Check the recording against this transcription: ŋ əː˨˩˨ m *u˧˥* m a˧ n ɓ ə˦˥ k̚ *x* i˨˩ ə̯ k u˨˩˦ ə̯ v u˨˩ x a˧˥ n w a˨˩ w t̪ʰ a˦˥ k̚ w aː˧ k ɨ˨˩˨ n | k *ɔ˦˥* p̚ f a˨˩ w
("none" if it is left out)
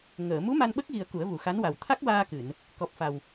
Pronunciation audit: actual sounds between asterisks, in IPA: u˧˥, ɣ, ɔ˨˩

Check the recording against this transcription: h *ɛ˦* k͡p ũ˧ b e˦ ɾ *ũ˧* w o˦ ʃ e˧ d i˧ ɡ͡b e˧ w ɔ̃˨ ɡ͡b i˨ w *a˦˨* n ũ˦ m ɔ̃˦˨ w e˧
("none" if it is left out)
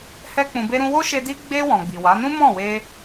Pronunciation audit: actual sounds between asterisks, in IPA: ɛ˦, ũ˧, a˨˦

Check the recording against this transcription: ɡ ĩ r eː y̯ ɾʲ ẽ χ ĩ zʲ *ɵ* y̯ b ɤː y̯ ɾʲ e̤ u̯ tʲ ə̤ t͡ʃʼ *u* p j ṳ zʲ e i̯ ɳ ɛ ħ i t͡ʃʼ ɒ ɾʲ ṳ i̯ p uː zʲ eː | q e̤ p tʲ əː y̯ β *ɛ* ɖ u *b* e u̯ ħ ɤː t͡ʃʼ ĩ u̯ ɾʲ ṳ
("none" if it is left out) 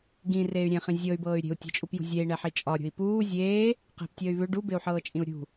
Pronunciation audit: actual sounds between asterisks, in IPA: ɤ, u, ʏ, b

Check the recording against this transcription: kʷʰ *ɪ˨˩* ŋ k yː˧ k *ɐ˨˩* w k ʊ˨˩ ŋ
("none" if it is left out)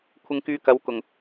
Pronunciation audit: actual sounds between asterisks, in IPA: ɪ˧, ɐ˨˧

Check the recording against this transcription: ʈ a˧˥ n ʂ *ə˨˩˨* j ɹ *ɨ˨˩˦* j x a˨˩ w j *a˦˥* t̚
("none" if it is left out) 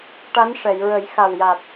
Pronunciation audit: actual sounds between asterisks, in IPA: ɛ˨˩˨, ə˨˩˦, a˨˩

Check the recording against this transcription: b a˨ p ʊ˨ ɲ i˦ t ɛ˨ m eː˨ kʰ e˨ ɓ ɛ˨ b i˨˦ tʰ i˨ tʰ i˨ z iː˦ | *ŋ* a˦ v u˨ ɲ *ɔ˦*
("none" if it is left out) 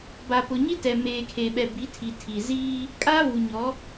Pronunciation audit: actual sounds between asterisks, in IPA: kʼ, ɔ˨˦

